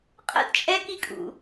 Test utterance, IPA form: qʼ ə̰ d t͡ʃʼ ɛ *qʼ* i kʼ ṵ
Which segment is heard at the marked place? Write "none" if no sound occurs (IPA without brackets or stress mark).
k